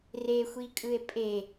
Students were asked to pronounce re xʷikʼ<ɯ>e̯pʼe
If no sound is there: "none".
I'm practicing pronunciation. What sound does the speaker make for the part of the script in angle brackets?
ɯ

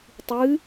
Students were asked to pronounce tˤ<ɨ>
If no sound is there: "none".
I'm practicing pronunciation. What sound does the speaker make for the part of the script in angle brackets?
ɨ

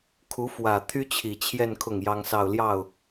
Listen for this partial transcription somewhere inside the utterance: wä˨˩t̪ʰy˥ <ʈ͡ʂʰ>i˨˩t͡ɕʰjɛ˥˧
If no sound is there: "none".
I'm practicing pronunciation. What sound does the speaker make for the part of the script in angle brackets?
t͡ɕʰ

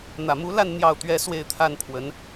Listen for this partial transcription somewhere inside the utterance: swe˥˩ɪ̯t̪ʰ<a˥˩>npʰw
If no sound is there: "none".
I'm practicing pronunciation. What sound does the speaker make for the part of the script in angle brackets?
a˥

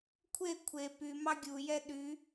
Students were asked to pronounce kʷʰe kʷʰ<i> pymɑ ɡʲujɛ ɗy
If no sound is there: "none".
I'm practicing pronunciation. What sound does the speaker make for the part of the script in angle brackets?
e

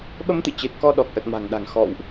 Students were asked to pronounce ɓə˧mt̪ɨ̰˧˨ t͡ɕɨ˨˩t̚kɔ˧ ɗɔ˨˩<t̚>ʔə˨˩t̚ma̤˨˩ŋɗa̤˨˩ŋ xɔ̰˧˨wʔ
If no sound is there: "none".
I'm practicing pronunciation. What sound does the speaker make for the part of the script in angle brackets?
k̚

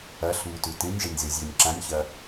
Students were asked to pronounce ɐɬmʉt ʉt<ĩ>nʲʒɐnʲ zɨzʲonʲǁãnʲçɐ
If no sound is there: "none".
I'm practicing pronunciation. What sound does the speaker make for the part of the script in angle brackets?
ĩ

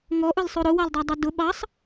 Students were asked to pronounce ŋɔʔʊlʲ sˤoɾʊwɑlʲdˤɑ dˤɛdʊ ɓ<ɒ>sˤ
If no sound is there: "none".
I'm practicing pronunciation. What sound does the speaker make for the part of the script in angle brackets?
ɑ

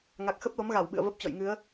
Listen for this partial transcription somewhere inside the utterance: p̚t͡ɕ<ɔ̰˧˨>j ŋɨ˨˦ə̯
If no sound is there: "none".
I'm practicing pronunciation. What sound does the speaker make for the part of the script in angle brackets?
ɔ̰˧˨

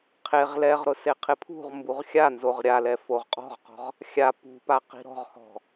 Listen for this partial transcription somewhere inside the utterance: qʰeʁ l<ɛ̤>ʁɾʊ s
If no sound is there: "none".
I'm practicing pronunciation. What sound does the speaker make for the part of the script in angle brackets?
ɛ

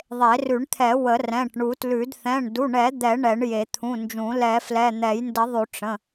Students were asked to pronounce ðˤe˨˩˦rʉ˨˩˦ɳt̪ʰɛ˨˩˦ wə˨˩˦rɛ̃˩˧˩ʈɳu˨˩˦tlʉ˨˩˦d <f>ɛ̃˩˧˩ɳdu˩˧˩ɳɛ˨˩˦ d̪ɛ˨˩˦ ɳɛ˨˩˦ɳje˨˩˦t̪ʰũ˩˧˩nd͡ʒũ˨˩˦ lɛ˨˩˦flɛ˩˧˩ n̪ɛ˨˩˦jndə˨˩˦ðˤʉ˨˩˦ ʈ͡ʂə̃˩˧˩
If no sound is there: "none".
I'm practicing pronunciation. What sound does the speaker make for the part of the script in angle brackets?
θ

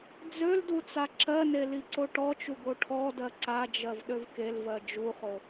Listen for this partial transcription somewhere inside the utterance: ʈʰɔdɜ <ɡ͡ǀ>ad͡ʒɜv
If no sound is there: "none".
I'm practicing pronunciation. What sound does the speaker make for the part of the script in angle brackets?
ǀ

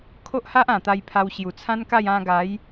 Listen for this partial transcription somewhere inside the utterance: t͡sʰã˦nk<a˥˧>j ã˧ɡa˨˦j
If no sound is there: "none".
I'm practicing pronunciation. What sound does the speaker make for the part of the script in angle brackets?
a˥˧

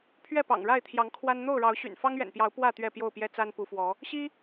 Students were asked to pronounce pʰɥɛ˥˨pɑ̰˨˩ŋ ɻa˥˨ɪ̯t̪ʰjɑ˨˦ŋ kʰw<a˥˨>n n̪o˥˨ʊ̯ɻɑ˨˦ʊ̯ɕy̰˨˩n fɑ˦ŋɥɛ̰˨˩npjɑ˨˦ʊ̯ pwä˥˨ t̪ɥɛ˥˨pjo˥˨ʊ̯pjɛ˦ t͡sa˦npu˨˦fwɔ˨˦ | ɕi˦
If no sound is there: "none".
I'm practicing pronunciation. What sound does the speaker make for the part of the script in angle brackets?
a˦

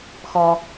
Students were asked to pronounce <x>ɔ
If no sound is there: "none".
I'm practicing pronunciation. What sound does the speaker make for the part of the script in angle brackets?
x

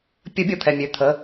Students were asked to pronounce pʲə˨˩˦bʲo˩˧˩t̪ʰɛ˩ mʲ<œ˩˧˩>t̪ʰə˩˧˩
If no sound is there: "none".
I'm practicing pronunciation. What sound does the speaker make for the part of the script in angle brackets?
ø˩˧˩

